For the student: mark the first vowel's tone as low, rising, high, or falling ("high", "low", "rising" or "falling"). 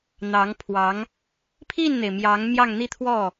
rising